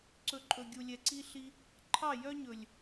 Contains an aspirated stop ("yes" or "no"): yes